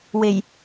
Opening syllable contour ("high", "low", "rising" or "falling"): low